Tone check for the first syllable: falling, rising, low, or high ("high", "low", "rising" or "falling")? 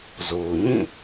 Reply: low